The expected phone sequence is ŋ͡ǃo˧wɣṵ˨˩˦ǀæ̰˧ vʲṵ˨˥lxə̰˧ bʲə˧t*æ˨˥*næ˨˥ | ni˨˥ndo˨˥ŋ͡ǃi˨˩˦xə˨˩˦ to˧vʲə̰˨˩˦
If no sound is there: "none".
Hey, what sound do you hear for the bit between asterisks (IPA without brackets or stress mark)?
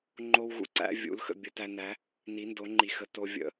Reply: æ˧